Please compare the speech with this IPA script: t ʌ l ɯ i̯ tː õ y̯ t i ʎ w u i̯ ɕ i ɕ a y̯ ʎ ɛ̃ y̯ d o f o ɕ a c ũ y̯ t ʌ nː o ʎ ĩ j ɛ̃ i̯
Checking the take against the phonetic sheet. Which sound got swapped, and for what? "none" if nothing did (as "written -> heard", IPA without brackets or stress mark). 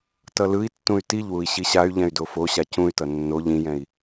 õ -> ũ